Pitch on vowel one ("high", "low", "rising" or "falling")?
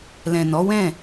low